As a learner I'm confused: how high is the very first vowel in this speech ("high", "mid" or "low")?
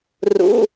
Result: high